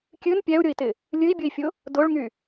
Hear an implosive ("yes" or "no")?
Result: no